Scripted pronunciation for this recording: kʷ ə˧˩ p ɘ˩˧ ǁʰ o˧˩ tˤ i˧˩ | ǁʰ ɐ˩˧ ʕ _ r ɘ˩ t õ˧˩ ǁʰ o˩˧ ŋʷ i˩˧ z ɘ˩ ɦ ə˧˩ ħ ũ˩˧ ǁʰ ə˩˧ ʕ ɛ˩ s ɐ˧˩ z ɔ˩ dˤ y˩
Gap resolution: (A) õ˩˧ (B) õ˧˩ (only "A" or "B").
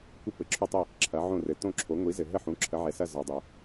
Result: B